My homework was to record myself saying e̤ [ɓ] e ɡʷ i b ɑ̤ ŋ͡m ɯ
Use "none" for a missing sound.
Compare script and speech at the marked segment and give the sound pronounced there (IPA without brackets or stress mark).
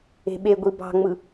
ɓ